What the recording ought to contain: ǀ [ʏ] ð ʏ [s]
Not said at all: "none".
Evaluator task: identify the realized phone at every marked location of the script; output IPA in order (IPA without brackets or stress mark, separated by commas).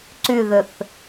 y, θ